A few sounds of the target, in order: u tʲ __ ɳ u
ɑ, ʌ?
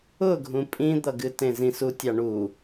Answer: ɑ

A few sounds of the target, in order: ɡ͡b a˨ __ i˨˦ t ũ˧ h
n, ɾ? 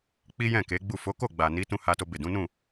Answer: n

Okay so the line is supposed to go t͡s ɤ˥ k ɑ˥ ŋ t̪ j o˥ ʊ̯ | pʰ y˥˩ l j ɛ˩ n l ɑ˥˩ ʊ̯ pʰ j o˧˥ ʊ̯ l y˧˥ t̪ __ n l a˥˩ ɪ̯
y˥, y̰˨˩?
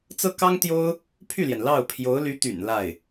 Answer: y̰˨˩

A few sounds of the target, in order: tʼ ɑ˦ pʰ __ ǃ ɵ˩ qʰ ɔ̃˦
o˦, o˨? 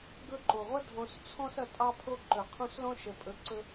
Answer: o˦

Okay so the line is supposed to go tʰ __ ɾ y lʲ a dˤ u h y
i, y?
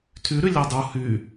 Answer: y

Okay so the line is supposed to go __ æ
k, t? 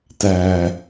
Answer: t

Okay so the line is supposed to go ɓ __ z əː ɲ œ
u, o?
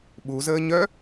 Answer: u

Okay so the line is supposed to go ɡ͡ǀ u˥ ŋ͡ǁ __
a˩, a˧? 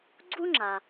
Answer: a˩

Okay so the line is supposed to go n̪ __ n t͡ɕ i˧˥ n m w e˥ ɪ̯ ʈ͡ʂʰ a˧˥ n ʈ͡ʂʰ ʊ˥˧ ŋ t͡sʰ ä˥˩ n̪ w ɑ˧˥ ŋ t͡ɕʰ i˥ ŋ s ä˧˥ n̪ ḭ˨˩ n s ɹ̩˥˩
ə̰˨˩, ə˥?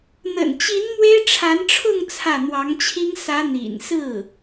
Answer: ə̰˨˩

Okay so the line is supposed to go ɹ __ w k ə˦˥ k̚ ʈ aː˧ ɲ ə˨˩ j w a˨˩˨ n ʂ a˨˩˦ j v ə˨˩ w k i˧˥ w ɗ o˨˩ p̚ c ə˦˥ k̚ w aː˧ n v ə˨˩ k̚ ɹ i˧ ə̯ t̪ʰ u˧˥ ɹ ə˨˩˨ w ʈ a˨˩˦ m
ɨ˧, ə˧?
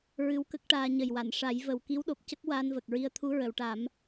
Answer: ɨ˧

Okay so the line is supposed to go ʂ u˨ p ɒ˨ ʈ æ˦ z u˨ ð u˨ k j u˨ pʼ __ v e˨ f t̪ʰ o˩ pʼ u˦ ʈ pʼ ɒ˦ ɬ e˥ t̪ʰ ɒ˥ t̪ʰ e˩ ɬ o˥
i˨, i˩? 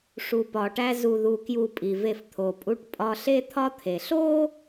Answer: i˩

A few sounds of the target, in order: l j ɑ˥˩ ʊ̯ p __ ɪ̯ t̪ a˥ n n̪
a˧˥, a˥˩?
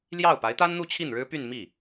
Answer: a˧˥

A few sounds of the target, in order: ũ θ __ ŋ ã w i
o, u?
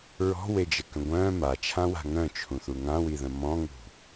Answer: u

